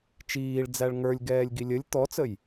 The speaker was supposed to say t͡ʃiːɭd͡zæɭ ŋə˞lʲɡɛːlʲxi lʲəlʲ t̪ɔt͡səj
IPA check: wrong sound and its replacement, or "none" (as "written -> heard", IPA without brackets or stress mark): x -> ɡ